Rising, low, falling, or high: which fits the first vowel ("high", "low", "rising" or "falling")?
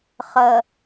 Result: low